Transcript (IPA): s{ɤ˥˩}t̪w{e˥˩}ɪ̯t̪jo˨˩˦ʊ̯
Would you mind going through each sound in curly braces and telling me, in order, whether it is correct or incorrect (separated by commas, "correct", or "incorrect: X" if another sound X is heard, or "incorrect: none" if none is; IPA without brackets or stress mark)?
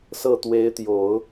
correct, incorrect: e˧˥